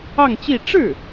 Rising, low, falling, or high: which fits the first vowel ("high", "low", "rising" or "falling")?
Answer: falling